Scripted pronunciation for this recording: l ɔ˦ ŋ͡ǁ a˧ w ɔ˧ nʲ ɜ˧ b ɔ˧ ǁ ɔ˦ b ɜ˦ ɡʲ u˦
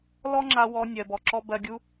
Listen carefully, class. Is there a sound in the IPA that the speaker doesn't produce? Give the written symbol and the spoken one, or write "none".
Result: none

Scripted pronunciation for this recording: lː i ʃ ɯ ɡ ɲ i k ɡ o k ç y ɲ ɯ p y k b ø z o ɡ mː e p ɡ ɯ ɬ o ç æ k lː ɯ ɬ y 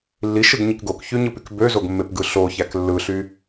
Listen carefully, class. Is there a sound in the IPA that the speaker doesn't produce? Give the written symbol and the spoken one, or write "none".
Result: none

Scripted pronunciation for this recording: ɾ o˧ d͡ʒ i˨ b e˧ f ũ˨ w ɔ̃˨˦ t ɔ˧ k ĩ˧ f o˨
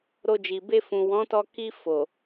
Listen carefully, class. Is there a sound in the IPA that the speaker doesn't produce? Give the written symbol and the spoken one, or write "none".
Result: ĩ˧ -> i˧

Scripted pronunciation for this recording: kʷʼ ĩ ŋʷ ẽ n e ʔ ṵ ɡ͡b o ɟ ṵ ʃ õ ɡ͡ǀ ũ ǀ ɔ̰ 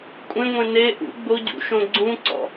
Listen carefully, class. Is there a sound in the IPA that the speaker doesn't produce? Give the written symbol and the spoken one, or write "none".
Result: ĩ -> ẽ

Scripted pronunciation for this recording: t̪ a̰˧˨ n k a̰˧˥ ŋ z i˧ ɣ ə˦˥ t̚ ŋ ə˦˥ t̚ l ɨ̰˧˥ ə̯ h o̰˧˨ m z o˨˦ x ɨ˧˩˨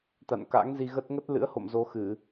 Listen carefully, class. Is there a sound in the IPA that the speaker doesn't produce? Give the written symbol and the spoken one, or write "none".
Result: none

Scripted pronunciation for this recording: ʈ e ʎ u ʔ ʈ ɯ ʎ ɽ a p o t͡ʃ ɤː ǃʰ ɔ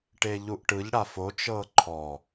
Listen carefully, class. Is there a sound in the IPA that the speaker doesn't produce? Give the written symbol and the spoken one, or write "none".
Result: p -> f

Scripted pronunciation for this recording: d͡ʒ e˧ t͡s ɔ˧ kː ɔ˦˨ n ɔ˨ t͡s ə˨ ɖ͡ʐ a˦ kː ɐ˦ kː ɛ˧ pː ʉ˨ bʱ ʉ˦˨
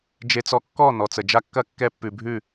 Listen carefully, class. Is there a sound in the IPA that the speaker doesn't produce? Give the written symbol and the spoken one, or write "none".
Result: ɖ͡ʐ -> d͡ʒ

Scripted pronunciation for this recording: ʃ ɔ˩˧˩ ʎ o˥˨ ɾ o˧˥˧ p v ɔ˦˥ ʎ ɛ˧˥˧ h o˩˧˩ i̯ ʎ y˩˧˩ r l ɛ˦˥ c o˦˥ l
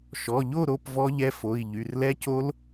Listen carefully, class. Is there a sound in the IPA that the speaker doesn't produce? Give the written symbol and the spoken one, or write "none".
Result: h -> f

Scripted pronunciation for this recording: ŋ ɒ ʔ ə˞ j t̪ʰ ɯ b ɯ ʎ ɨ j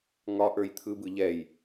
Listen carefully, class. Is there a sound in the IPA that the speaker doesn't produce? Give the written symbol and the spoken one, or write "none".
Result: ɨ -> ɛ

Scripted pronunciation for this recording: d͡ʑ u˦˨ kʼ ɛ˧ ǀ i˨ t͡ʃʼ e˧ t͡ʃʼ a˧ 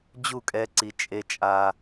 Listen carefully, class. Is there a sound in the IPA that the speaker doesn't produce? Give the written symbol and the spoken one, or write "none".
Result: none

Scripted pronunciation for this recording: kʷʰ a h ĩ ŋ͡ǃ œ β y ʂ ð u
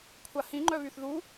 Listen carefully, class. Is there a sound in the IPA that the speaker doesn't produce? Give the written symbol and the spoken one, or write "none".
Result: ʂ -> θ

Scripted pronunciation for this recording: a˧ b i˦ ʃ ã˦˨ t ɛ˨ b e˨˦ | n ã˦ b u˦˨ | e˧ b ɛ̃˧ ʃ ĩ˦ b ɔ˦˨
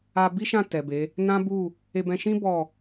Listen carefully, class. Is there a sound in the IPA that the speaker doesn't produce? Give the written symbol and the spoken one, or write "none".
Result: none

